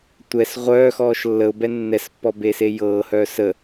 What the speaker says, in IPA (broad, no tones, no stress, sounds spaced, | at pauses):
tʷ ɛ s ʁʷ œː x ɔː ʃ lː ə ʊ̯ b ɛ nː ɛ s pː ɔ b e s e j ɤː h œː s ə